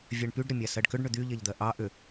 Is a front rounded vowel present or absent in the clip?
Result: present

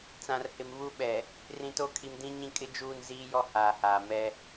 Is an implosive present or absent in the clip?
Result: present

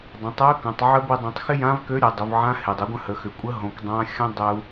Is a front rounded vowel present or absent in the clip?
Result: present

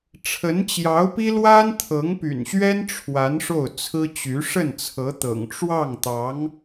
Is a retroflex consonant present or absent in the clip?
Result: present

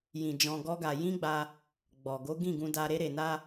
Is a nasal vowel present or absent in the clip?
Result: present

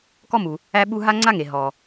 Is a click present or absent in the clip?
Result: present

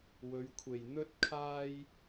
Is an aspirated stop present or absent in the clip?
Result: present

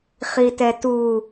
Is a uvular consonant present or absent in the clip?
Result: present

